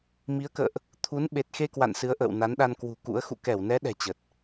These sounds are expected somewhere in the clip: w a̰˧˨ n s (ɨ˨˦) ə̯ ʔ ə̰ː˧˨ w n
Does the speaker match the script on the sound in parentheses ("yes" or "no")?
yes